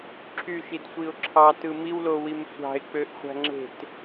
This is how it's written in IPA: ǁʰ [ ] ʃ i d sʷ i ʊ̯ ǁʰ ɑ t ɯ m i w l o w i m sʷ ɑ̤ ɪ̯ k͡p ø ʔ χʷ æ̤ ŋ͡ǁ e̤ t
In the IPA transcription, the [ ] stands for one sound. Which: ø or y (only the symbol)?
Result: y